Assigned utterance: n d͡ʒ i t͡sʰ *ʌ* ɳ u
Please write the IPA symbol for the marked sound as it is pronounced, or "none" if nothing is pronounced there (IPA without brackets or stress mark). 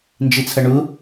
ʌ